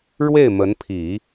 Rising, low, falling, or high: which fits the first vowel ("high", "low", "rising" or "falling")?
falling